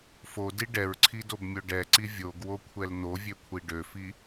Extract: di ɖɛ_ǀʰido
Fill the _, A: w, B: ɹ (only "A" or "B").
B